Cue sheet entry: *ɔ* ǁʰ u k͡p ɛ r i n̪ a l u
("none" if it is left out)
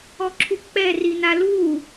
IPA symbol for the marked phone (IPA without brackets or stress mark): ɔ